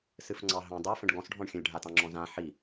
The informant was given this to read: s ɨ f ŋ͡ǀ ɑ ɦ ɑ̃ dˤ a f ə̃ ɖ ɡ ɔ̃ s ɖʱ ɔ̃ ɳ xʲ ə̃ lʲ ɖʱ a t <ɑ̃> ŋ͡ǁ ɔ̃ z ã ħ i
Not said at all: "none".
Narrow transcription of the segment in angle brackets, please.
ɑ̃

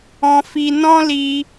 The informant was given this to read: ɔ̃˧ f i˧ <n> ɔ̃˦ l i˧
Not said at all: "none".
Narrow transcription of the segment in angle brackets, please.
n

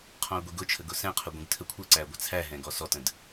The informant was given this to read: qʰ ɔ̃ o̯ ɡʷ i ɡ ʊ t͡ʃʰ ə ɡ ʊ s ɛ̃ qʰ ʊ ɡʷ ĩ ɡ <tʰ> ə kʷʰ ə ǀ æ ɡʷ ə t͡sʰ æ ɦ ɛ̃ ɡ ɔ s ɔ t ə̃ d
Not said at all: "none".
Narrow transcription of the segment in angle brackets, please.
tʰ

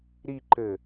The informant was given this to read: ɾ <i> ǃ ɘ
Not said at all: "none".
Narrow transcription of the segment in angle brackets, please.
i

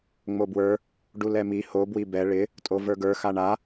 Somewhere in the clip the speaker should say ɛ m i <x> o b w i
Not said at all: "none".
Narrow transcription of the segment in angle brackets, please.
h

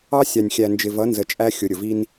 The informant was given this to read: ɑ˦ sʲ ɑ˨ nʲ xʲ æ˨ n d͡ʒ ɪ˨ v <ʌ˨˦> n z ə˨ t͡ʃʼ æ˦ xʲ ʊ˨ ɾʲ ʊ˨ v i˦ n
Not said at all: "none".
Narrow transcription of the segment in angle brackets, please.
ʌ˨˦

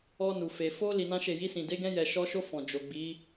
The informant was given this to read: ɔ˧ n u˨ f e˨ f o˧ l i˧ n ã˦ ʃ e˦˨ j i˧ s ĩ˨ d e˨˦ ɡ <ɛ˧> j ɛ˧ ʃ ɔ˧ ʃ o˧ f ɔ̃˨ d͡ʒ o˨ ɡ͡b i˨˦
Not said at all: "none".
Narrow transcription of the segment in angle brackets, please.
ɛ̃˧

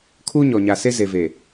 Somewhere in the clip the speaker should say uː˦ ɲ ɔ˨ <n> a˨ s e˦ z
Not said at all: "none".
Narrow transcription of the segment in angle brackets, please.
ɲ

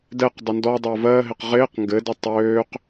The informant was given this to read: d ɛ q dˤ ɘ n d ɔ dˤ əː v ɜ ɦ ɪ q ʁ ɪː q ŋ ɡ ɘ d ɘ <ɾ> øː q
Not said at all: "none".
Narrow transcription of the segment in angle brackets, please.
tˤ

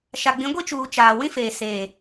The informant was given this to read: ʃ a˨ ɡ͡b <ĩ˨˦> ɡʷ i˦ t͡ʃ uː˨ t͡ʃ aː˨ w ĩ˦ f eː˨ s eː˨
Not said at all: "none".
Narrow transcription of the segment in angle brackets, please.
ĩ˨˦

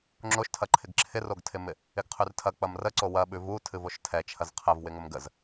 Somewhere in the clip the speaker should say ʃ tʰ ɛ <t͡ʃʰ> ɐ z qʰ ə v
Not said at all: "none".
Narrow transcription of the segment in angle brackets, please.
t͡ʃʰ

